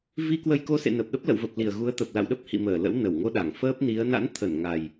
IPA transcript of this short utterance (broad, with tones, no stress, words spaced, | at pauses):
vi˧kwə˧jko˧ sḛ˧˨ nə˨˩p̚ɗə˦˥p̚lə̰˧˨wvə˨˩p̚ li˨˩ə̯ɣu˨˦ə̯ t̪ə˨˩p̚ la̰˧˨wɗə˦˥p̚hḭ˧˨ məː˧˩ lə̰˧˥wnə˧˩wŋo˧ɗa˧˩ŋ fəː˦˥p̚ni˨˦ə̯ na̰˧˥nt̪ʰə˧˩n ŋa˨˩j